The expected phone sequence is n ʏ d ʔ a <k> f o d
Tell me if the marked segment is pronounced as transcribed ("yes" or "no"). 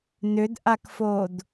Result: yes